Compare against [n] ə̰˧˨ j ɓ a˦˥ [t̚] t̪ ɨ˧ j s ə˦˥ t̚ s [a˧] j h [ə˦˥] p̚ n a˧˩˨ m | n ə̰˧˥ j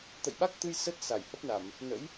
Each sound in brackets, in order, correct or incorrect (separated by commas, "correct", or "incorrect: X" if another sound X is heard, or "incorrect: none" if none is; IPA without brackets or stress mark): incorrect: t̪, incorrect: k̚, incorrect: a˧˩, correct